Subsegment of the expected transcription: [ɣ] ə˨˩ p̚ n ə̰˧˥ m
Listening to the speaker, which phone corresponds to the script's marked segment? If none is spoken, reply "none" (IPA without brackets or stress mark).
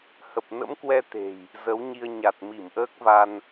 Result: h